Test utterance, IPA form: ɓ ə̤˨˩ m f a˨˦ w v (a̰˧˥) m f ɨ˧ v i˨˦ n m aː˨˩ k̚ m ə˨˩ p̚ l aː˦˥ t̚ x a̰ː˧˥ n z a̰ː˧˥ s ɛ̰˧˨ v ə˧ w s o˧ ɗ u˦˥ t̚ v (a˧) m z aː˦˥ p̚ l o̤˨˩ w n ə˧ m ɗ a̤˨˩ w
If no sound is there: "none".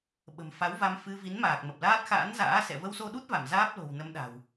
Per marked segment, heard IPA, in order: a˧, a˧˩

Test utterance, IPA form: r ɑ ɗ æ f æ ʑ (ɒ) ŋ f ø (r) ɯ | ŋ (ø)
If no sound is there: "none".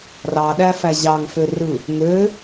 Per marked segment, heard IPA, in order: ɑ, r, ø

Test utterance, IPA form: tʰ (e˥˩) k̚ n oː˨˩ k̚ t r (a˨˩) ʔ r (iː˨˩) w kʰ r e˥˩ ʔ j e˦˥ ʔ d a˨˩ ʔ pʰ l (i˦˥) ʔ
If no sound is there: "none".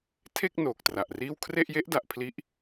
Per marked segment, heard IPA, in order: e˥˩, a˨˩, iː˥˩, i˦˥

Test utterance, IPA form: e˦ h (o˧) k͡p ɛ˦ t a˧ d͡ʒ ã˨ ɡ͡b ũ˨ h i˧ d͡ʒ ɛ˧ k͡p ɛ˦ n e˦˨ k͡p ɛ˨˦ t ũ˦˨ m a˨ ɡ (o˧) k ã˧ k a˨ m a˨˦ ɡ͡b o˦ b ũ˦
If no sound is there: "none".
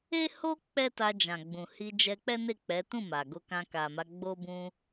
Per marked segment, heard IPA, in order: o˦, o˧

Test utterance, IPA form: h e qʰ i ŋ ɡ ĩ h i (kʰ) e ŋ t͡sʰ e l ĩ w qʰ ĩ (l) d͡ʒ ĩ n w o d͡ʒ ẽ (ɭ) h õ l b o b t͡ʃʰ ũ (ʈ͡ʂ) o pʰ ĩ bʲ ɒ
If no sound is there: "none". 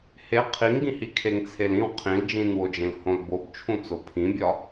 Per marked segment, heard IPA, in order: kʰ, l, l, t͡s

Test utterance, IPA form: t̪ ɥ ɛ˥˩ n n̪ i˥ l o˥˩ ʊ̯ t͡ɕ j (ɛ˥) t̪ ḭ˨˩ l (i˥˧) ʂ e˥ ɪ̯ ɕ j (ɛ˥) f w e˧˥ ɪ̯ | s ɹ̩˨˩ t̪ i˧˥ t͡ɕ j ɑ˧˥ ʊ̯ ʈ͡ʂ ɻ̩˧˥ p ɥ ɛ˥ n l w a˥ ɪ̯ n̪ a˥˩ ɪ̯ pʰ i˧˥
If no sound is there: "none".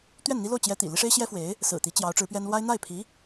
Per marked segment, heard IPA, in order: ɛ˥, i˥, ɛ˥

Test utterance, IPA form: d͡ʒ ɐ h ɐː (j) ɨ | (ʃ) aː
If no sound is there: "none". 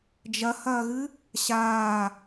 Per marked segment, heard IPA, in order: ɣ, ɕ

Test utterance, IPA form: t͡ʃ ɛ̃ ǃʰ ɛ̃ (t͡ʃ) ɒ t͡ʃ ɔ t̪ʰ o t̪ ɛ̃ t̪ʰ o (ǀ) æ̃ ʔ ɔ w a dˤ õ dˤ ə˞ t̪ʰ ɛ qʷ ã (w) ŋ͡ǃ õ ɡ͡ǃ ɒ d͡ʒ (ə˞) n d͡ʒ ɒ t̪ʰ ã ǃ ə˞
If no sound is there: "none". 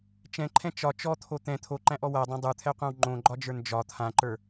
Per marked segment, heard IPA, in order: t͡ʃ, ǃ, w, ə˞

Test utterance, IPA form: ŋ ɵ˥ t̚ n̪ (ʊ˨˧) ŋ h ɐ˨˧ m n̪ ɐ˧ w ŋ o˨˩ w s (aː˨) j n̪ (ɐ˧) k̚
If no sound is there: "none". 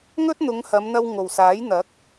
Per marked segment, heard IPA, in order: ʊ˨˧, aː˨˥, ɐ˨˥

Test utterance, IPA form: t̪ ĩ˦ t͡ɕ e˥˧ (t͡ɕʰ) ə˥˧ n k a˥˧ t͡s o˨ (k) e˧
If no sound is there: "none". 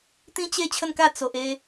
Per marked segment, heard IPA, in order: t͡ɕʰ, ʔ

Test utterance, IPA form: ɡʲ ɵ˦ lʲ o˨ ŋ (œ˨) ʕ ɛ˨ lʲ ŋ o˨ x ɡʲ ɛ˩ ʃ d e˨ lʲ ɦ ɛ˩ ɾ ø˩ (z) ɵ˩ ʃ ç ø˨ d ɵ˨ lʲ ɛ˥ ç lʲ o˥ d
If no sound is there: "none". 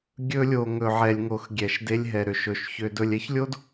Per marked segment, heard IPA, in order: ɵ˨, ʃ

